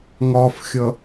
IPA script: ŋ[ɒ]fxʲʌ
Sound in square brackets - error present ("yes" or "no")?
no